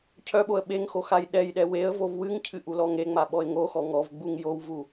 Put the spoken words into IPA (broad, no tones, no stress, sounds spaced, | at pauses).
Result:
cʰ œ ɓ o ə̯ ɓ e ŋ x o x a j ɗ ɛ j ɗ ɛ w e ə̯ v o v w ɨ ŋ cʰ ɨ ʔ u l ɔ ŋ e ŋ͡m a ɓ ɔ ɪ̯ ŋ o x ɔ ŋ ɔ v ɡ͡b u ŋ j o w v u